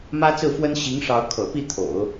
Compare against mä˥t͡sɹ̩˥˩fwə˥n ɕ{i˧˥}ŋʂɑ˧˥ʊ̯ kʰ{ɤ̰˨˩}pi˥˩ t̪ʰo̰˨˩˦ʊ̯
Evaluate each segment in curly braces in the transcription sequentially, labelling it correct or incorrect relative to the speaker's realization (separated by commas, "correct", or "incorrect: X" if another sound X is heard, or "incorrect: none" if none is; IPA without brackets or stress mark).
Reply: correct, correct